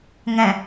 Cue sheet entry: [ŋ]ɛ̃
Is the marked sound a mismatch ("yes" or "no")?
no